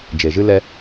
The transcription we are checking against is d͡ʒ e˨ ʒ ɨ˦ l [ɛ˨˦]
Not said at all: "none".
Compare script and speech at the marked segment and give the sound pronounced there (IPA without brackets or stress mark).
ɛ˦